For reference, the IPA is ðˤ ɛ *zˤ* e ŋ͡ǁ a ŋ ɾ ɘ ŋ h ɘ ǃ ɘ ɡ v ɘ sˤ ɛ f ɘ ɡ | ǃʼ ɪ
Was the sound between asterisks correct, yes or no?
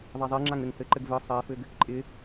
yes